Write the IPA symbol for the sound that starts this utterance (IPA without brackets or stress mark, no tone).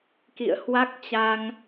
k